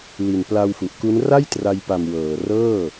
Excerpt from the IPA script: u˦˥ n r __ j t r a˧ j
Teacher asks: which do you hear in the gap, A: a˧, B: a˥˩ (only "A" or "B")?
B